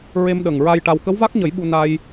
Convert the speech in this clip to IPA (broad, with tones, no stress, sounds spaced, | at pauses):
ɹ e˧ m ɗ ə˨˩ ŋ ɹ a˧ j ʈ a˧ w k ə˧˥ w v a˦˥ k̚ ɲ ə˨˩˦ j ɓ u˧ n a˧ j